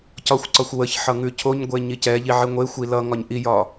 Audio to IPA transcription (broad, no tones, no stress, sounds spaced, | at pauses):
c ɒ xʷ ǀ ɒ xʷ w ə ç ħ ʌ ŋ ʉ cʰ o ɲ ɡʷ e ɲ i c ɛ ʎ i ʕ i ŋʷ e xʷ i l ʌ ŋ ɒ ɲ ʔ i j ɒ